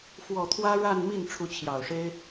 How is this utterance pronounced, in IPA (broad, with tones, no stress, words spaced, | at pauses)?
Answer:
fwɔ˨˩t̪ʰwä˥ ɻa˥˧nmi˥˩n ʈ͡ʂʰu˧˥t͡ɕʰjɑ˨˩ʊ̯ʂe˥ɪ̯